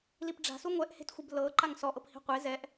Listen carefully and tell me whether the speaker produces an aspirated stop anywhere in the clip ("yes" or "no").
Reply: no